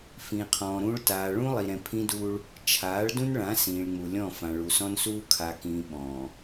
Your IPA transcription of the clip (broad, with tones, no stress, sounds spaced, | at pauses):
f ĩː˨ qʰ ɔ̃ː˨ ɾ ũː˦ ɭ t aː˨ ɭ ũ˦ lˠ i˨ ɾ ɛ̃˨ pʰ ĩ˦ d uː˦ ɭ | t͡ʃʰ aː˨˦ ɭ d ũ˦ n ɭ ã˨˦ s ĩː˨ ɭ ŋ͡m u˨ lʲ ɔ̃˦˨ f ã˨ ɭ u˨ s ɔ̃˦ n s uː˦ kʰ a˨ k ĩː˨ ɓ ɔ̃ː˨